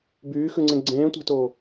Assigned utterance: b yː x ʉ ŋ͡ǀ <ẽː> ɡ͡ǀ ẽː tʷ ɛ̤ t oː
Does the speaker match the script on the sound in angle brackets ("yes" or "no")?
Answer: no